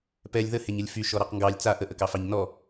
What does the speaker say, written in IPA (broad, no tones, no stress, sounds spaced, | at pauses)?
p ɛ lʲ ð ə h e ɲ ə lʲ f y ʃ ɔ ɾ ɑ q ŋ ɡ ɑ lʲ t͡s a ʔ ə ʔ ə k ɑ f ɑ ɲ n ɔ